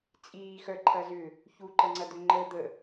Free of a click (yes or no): no